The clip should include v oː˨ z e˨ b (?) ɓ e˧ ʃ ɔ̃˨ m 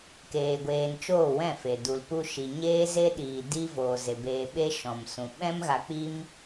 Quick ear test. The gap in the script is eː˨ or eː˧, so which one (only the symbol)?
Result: eː˨